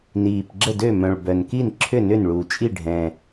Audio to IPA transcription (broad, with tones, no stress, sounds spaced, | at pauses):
n iː˨˩ p ɡ͡ǁ ə˥˩ d ø˥˩ m œ̃˨˩ ɭ b œ˨˩ n k i˥˩ n ǁʰ ʏ˥˩ n ʏ˥˩ n ɭ u˨˩ t͡ʃʼ i˥˩ ɖʱ ɛ̃˨˩